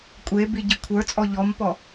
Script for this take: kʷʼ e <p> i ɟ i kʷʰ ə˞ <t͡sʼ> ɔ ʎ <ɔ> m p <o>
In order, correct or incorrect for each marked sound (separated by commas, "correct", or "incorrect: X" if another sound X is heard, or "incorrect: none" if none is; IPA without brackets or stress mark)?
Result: incorrect: b, correct, correct, incorrect: ɔ